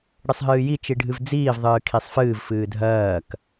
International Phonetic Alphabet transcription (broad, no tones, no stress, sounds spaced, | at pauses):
ɽ ɨ sˤ ɦ ɨː j i t͡ʃ i ɖʱ ɨ v d͡z iː v ðˤ ɨː kʰ i sˤ f ɨː v f ɨː dʱ ɜː k